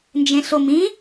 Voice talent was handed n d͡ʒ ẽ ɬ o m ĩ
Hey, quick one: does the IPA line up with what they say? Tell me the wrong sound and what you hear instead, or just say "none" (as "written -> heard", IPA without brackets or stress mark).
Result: none